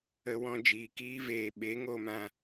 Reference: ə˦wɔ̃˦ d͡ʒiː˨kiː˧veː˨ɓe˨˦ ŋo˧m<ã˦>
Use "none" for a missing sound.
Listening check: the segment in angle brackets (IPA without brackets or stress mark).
ã˧